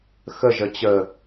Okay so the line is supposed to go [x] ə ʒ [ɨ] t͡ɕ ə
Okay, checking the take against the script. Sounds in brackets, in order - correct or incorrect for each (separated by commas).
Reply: correct, incorrect